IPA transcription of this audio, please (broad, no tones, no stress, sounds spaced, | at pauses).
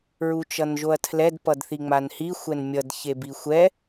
ɹ u t͡ʃ ʌ n ʒ o ɐ̯ tʰ l ɛ d p ʌ d θ i ŋ͡m a n h i xʷ ɛ n mʲ ʌ d ç e b i xʷ ɛ